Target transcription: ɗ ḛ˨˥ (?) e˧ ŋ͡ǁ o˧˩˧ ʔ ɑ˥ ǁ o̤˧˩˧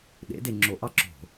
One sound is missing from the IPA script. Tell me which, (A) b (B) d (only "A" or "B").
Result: B